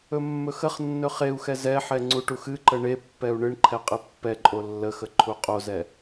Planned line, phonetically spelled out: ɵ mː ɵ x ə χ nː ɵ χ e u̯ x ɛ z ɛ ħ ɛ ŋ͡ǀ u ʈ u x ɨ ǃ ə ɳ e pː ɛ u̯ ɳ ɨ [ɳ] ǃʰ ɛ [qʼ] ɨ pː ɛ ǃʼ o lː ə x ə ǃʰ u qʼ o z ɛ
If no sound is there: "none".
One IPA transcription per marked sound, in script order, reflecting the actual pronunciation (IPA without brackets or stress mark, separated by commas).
ɳ, qʼ